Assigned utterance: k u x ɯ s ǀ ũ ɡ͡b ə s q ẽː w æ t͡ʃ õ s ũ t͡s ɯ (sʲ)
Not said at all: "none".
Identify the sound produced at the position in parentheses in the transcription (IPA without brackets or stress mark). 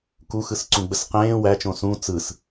s